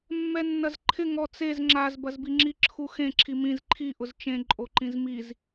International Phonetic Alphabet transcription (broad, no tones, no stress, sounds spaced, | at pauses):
mː ɛ nː ɐ z ǃʰ ɪ ŋ ɔ t͡s e z ŋ͡ǁ a z b ɐ z b i ŋ͡ǁ i ǁʰ u x ẽ ǁʰ i m ĩ z ǃʰ i ʔ ʊ z t͡ʃ ẽ ǃʼ o ǃ ĩ z m i z